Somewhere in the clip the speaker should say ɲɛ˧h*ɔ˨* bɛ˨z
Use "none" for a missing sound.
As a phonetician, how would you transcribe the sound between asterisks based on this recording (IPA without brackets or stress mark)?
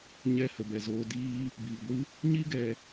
ə˨